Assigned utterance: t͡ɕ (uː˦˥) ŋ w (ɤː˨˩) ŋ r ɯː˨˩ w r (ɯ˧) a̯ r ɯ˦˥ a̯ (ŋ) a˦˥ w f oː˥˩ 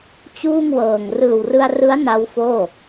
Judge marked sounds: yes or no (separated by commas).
no, yes, yes, no